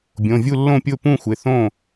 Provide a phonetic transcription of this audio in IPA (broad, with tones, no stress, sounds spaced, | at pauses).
bʲ õ˩˧˩ vʲ u˥˨ lː õ˥˨ pʲ ʊ˥˨ p ũ˥˨ xʷ ɪ˩˧˩ θ õ˥˨